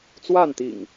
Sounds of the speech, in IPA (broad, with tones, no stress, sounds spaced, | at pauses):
t͡s w a˥˨ n t̪ ḭ˨˩ ŋ